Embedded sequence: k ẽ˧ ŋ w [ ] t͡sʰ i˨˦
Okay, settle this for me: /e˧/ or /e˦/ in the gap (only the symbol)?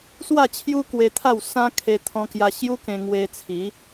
e˧